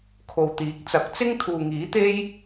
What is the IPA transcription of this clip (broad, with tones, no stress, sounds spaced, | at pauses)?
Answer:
kʰ o˨ w t̪ iː˨˥ k̚ t͡s ɐ˨˥ k̚ t͡s ɪ˥ ŋ t̪ʰ uː˨ ŋ iː˨˥ t̪ e˥ j